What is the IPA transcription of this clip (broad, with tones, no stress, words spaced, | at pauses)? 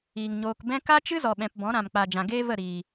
iː˨ŋɲoː˧k bɛ̃˦ ka˦t͡ʃɨ˦zɔ˨ɓɛ̃˨p bɔ̃˨˦ɾã˨mk͡pa˨ d͡ʒã˨ɡeː˦və˦˨ ɾiː˨